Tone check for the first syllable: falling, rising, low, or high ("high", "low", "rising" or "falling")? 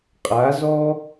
rising